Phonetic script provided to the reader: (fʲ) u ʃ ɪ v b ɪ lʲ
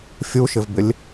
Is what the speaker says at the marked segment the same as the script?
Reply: yes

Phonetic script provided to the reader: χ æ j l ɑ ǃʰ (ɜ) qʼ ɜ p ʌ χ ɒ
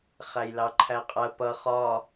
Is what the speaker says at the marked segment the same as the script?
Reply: no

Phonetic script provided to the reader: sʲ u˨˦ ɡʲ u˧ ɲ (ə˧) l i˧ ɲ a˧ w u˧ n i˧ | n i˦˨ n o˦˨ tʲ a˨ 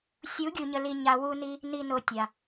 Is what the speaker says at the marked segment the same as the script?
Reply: yes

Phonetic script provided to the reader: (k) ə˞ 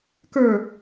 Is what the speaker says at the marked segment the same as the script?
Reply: yes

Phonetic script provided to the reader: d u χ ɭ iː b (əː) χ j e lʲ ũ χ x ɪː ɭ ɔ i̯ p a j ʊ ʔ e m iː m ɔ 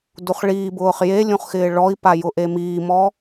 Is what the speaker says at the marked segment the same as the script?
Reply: no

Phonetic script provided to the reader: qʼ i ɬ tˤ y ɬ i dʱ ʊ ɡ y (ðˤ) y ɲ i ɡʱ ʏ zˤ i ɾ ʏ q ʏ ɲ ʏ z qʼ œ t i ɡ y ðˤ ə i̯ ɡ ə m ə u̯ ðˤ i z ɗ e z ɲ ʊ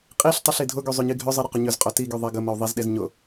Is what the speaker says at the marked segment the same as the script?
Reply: no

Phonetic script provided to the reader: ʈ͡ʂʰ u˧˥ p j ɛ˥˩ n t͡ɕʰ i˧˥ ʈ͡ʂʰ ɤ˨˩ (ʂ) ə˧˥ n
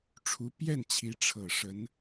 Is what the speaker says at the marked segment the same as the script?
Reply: yes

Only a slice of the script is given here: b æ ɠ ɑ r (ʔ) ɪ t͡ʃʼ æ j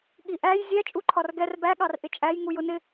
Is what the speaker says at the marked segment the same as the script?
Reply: yes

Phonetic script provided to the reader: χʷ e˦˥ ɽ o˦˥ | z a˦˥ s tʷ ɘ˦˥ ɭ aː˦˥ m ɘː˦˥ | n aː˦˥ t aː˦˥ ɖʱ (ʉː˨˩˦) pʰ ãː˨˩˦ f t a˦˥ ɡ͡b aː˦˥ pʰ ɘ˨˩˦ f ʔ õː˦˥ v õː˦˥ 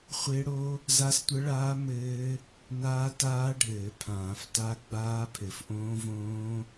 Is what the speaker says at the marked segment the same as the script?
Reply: no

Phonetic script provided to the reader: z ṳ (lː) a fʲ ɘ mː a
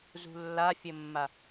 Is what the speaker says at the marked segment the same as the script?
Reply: yes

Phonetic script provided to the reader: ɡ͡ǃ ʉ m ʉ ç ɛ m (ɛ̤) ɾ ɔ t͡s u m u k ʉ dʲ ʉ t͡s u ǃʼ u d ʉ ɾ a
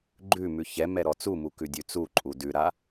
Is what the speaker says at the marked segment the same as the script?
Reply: no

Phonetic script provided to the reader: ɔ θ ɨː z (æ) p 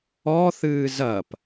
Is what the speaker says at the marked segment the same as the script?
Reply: no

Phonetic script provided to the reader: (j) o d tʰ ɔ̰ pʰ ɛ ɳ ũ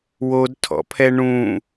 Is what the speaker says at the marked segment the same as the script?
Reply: no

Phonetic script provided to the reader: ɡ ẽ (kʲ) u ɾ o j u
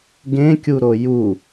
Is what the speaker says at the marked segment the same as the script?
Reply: yes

